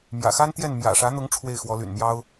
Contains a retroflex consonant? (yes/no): yes